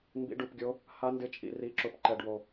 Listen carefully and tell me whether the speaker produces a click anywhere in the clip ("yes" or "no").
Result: yes